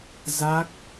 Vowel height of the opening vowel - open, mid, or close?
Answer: open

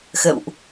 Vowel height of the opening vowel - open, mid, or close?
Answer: mid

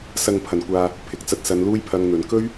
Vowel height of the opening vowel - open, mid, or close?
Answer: open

